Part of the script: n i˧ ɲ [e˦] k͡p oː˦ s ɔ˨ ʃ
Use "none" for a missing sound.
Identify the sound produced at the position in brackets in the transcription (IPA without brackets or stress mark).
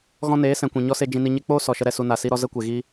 e˦